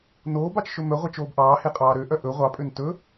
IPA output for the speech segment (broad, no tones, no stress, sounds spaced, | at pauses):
n oː b ɑ t͡ʃ ʃ ɵ m œ ʁʷ ɛ t͡ʃ oː b ʔ ɑː h e qʼ ɑː ɾ ø ʔ œ ʔ ɵ ʁʷ ɑ pʼ ø n t ɵ